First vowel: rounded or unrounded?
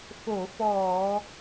rounded